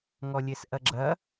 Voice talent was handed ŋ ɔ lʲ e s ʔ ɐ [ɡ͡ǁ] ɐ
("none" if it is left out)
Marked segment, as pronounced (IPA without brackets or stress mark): ɡ͡ǁ